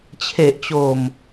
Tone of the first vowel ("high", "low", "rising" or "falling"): low